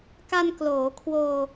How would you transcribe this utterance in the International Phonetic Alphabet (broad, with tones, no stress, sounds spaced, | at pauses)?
k a˧ n k l oː˩˦ kʰ w oː˧